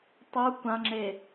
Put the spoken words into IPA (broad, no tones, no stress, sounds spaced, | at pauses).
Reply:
tˤ u kʷ ã ŋ͡ǁ e